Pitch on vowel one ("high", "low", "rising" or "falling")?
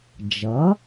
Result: rising